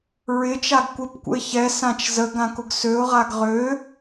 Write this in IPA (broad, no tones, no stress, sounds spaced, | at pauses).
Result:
ɹ ɪ t͡ʃ a ɡ kʷ ɪ p kʷ ə̰ ɪ̯ ç ɛ s ã t͡ʃ z ə ɡ ã k ʊ ɡ s ø ʊ̯ ʁ a ɡ ʁ ø